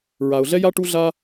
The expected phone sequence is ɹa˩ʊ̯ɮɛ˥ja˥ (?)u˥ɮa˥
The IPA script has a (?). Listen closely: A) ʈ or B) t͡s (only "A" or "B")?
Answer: A